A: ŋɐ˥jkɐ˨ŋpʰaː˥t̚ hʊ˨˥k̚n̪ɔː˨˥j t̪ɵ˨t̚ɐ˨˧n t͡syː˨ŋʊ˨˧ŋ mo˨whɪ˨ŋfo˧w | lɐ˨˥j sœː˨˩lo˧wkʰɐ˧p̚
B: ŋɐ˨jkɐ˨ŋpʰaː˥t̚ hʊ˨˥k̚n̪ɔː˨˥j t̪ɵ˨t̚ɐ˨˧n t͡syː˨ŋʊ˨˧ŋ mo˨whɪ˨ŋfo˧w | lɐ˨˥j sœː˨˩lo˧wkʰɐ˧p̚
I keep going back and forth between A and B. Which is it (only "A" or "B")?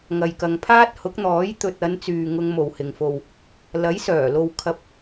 B